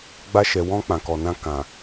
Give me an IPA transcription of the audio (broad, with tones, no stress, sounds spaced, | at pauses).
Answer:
ɡ͡b a˧ ʃ ɛ˨ w ɔ̃˧ k͡p ã˨ k ɔ˨ n ã˧ k ã˨